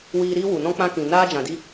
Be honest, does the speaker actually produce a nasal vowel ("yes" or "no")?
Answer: yes